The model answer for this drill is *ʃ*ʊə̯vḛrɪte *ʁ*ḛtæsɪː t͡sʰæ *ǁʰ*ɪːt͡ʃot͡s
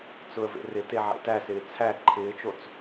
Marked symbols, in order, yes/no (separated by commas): no, no, no